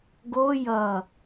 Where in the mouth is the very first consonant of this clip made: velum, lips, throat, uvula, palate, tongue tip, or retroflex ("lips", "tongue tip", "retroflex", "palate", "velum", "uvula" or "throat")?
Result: velum